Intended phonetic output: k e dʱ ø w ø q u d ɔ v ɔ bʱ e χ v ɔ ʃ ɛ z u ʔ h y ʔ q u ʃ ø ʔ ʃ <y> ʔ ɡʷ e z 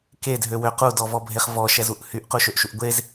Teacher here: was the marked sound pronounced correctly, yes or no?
no